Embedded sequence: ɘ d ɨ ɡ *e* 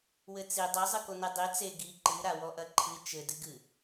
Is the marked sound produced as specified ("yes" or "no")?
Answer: no